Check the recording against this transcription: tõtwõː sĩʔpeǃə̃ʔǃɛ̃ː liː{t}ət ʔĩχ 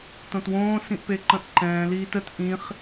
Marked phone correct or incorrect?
correct